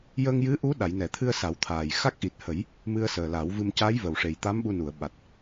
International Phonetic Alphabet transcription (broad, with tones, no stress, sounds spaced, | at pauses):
j ə˧ ŋ j ɨ˧˥ ʔ u˧˥ ɗ a˨˩˨ j n ɛ˨˩˨ t̪ʰ ɨ˧ ə̯ s a˨˩˦ w t̪ʰ aː˨˩ j x a˦˥ k̚ ʔ i˨˩ t̚ h ə˨˩˦ j | m ɨ˧ ə̯ s əː˨˩ l a˨˩˦ w v ɨ˧ m c a˧˥ j v ə˨˩ w ʂ e˨˩ j t̪ a˧˥ m ɓ u˧ n u˨˩˨ ə̯ ɓ a˨˩ t̚